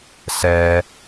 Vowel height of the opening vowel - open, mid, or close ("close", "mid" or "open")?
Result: mid